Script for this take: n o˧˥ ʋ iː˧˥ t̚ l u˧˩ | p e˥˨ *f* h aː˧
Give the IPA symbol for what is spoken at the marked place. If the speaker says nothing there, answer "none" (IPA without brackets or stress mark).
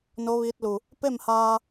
m